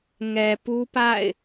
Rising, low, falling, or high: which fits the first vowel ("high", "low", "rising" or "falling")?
low